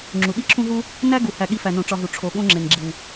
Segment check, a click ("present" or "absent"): present